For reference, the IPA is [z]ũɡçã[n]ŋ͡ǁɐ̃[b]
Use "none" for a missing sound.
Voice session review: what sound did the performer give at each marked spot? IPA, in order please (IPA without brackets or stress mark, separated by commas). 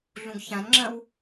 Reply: ɮ, n, w